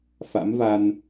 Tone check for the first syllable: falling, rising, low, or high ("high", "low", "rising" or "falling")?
rising